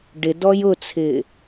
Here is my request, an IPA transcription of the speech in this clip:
ɖ ɪ d ɔ j ʊ t͡sʰ ɪ

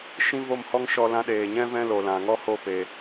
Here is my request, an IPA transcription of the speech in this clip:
ʃ ĩ˦ v o˦˨ m h ɔ˦ ŋ ʃ ɔ˧ l ã˧ ɗ eː˨ ɲ ɛ̃˦ v ɛ̃˦ l o˨ l ã˨ ŋ ɔ˦ h o˦˨ p eː˨

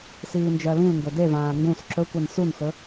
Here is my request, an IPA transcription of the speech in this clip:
s iː n d͡ʒ ɜ l ĩ l ŋ ɡ ɵ d e v ãː ŋ ɡ ũ s ǁ ɵ kʷ ɛ n s u n x ɵ

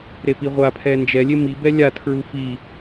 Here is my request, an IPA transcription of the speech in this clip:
ɾ e p i ʁʷ a pʰ ɛ n d͡ʒ ɛ lʲ e m i b ɛ lʲ a tʰ ɹ u f i

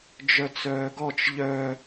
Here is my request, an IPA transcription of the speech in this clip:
d͡ʒ œ t͡s œː ɡ ɔ t͡ʃ ʎ œ

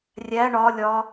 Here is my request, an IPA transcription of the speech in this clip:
rʲ æ ɳ ɒ lʲ ɒ

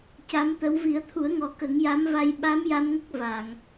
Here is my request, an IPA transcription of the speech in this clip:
c a˧˥ m t̪ ə˧˥ w v i˨˩˦ ə̯ t̪ʰ u˨˩˦ ə̯ ŋ ɔ˨˩˨ k ə˨˩˦ ŋ j a˧˥ m v a˧ j ɓ a˧˥ m j a˧ m ŋ ə˦˥ k̚ v a˨˩˨ ŋ

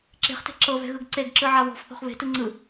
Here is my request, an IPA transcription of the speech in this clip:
ǁ e̤ χ t e̤ ǁ ɤ β ɛ̤ ɣ ɯ ɡ ǀ e ɡ ǁ ɯ ʕ a β ɔ̤ f θ ɔ̤ χ β e̤ t ɯ ŋ͡ǀ ɯ

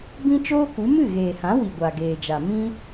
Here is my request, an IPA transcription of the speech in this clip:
b ĩ˦ t͡ʃ oː˦ k u˨˦ m ɨ˦˨ ɣ eː˨ h ã˨˦ w i˨ ɡʷ a˨ ɡ eː˨ d͡ʒ a˨ m ĩ˦

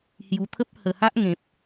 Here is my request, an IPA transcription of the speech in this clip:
h j u˨˩ t̪ʰ ə˦ p̚ h ə˨˩ h a˦ ʔ ŋ ẽ˨ p̚

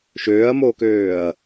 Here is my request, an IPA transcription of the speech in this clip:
ʃ øː ɐ̯ m o k øː ɐ̯

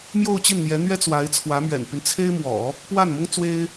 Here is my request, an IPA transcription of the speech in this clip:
m j o˥˧ ʊ̯ t͡ɕ i˥˩ n n̪ j ɛ˧˥ n̪ ɥ ɛ˥ t͡s w a˧˥ ɪ̯ t͡sʰ w ä˧˥ m ɥ ɛ̰˨˩ n p y˦ n t͡sʰ e˥ ɪ̯ m w ɔ̰˨˩˦ | p w a˥˩ n m ʊ˥ ŋ t͡s w e˥ ɪ̯

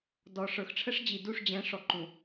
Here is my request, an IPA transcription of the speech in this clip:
d ɔ˨ ʂ ə˞˨ x ʈ͡ʂʰ ə˦ ʂ d͡ʑ i˨ d u˦˨ ʂ d͡ʑ ɛ̃˨˦ ʂ ɔ˨ ǃ ũ˨

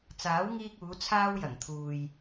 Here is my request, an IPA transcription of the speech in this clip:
t͡s aː˨˥ w ŋ iː˧ k̚ uː˨˧ t͡sʰ aː˧ w j ɐ˨˩ ŋ t̪ʰ uː˨ j

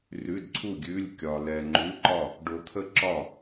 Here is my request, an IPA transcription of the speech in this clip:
r ʉ˧˥˧ d ǀʰ u˥˨ ɡʲ ʉ˧˥˧ lʲ kʲ ɒ˧ l ɛ˧ ŋ͡ǃ ʉ˧˥˧ ǃ ɒ˥˨ | ɖ o˧ t̪ʰ ə˥˨ ǁ ɒ˥˨

